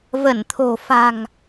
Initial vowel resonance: oral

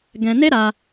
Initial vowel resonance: nasal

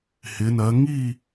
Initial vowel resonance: oral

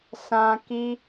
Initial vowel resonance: nasal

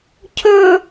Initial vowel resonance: oral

